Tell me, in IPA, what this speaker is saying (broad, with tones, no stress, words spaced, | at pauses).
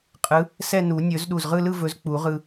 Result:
qʼɯ˨˥ | sɛ˥˧nu˨˩˦ nʲɵ˨˩˦zɗu˧˩zʁɯ˥˧lɯ˥˧ vɵ˨˥zk͡pu˨˩˦ʁɯ˧